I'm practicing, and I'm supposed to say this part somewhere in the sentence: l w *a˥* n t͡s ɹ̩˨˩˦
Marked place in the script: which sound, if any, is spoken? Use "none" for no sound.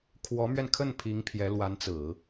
a˧˥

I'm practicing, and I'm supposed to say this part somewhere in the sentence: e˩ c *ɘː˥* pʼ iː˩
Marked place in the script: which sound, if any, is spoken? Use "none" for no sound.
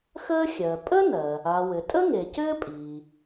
ɘː˥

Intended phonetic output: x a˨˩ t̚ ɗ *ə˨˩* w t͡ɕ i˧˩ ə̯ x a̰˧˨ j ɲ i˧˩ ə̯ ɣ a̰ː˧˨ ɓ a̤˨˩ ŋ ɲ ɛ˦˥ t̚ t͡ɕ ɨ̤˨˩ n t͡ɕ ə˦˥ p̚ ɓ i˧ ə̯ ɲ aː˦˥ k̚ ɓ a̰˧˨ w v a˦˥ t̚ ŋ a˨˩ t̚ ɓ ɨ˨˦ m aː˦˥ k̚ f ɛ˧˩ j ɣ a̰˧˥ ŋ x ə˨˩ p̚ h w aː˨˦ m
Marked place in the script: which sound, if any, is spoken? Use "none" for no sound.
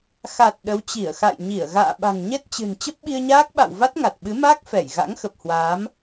ə˨˦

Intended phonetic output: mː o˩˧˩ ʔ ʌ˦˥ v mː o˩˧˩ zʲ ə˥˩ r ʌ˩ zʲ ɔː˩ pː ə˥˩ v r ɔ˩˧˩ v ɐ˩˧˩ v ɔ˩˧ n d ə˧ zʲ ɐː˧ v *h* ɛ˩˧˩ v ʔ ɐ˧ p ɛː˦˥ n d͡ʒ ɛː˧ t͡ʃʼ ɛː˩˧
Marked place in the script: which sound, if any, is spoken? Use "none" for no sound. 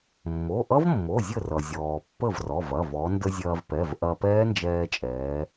p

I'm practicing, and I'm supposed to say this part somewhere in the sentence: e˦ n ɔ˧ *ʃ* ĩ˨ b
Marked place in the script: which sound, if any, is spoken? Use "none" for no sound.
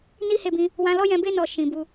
ʃ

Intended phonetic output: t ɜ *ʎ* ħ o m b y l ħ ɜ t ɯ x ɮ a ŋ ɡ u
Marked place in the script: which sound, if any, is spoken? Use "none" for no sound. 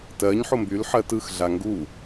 ɲ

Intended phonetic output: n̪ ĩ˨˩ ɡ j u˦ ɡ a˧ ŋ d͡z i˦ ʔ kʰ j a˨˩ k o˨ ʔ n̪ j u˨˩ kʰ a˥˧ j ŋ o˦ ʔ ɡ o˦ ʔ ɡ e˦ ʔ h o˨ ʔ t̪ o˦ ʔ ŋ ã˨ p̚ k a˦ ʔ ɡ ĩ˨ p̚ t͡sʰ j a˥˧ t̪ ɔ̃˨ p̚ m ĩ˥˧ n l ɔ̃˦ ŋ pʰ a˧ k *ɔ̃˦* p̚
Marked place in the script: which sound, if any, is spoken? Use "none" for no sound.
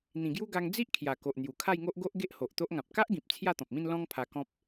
ɔ̃˦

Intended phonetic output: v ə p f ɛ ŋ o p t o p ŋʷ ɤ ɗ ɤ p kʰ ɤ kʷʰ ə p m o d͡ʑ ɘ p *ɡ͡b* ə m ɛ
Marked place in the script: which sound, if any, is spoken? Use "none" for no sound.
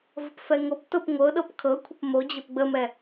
ɡ͡b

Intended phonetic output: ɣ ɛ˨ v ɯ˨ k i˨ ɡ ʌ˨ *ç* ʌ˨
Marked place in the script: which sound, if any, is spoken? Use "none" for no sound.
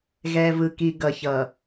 ç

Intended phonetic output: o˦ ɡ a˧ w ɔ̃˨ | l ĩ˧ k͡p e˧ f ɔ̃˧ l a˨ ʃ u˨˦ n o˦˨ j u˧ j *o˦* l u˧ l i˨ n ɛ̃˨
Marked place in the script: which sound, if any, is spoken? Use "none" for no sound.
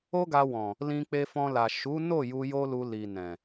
o˦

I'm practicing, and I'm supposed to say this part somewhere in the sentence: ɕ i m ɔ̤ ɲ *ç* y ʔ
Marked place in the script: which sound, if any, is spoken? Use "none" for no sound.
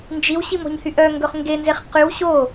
h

